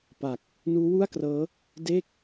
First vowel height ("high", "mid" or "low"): low